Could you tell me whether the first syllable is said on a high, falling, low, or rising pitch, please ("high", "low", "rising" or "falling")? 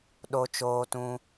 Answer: high